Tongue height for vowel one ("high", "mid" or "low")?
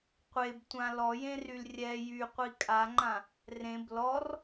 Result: mid